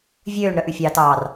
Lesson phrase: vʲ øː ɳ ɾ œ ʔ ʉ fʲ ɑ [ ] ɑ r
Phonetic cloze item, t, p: t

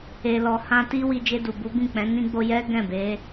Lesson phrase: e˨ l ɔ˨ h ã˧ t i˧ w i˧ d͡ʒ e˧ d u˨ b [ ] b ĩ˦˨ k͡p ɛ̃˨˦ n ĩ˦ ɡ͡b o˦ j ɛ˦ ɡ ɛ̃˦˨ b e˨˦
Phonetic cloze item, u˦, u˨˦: u˨˦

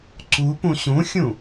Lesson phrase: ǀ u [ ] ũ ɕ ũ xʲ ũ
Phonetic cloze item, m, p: p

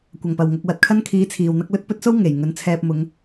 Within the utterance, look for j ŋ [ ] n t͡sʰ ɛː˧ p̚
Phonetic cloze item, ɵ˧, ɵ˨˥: ɵ˨˥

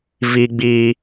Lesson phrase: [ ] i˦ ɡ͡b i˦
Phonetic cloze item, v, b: v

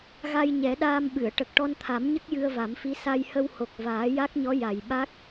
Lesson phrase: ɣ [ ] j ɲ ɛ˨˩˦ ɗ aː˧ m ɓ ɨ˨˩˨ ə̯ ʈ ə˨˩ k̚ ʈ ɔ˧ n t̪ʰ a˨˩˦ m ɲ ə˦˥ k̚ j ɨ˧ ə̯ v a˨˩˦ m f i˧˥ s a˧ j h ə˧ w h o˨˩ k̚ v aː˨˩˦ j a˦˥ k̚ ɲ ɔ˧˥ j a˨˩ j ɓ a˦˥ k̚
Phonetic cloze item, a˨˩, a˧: a˧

